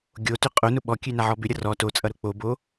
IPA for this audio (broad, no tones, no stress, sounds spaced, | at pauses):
ɡʲ o t ʏ qʼ o n ʊ ɓ ɔ kʲ ʉ n a ʕ ɔ b ʏ ɾʲ ʌ r ɔ t o t͡sʼ ʌ ɾ ʊ k͡p o b o